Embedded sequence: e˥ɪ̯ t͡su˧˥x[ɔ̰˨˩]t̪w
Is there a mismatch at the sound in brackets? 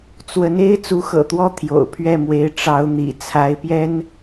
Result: yes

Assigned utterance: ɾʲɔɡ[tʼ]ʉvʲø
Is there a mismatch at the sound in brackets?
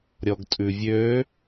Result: no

